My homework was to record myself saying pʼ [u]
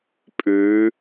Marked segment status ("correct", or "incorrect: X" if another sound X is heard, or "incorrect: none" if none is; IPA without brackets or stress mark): incorrect: ʉ